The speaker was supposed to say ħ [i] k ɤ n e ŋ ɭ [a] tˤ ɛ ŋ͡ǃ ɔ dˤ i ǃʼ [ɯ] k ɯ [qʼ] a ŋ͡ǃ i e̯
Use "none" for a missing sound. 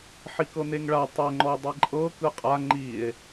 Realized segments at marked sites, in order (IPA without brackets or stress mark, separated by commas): i, a, ɤ, qʼ